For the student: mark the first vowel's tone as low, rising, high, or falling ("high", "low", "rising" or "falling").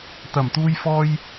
low